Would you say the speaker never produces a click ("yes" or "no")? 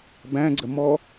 no